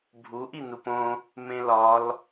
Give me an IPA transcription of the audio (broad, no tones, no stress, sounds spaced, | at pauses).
bʱ u ʔ i n u p õ | m ẽ l ɒ l